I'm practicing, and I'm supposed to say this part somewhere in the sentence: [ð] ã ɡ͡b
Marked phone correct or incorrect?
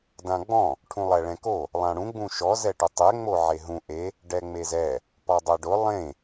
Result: incorrect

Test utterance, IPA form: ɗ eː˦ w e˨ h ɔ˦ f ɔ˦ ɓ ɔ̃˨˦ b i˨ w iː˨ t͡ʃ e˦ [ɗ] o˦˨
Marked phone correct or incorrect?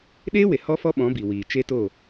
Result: incorrect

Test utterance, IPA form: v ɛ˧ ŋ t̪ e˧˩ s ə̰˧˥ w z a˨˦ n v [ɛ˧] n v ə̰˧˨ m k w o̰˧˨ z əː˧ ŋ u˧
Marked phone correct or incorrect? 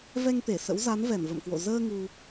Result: incorrect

